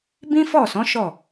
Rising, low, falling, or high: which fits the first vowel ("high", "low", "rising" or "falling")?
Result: high